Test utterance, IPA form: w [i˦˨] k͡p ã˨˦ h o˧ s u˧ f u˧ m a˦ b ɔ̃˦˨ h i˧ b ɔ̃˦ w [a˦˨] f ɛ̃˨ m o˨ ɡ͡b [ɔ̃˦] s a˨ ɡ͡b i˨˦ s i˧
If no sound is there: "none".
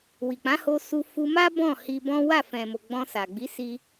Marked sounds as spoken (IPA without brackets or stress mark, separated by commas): i˨, a˦˨, ɔ̃˧